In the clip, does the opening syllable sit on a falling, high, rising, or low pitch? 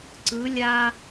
rising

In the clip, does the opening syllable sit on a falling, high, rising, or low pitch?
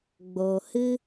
low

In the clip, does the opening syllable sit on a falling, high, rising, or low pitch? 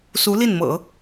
rising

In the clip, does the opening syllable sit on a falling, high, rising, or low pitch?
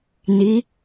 rising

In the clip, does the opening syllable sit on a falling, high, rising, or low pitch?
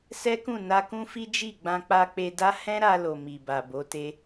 high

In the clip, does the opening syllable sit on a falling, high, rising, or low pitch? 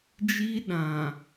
high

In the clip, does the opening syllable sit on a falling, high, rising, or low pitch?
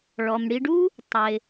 low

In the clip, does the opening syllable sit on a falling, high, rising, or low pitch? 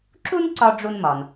high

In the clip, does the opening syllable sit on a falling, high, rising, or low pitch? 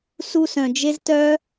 high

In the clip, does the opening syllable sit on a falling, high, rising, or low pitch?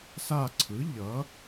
falling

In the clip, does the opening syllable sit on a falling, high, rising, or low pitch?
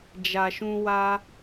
low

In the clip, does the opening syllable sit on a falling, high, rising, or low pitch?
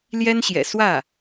high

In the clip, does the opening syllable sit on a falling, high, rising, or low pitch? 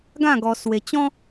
falling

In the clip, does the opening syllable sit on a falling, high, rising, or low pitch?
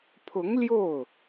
rising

